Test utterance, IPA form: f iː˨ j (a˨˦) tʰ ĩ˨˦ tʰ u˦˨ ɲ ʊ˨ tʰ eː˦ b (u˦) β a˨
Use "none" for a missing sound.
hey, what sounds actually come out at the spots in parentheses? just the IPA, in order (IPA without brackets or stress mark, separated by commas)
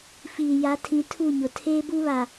a˨˦, u˦